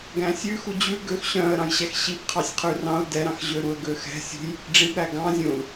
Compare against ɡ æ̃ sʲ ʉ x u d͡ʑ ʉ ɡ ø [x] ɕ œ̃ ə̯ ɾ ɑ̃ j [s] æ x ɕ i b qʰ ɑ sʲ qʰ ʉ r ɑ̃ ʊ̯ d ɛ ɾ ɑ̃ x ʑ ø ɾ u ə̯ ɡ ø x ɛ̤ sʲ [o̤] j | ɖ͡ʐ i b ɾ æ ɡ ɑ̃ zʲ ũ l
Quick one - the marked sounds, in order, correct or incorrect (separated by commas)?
correct, incorrect, incorrect